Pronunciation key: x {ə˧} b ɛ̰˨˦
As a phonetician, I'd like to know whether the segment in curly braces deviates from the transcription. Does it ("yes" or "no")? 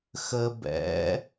no